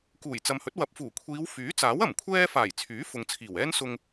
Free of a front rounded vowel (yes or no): no